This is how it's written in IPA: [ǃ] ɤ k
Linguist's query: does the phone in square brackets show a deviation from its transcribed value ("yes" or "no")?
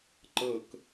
no